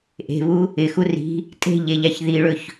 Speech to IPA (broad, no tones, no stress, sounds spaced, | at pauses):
ʔ e̤ β u | ɪ x u r i̤ | tʼ e̤ ʎ e ʎ a ç ð i ɭ ɵ ç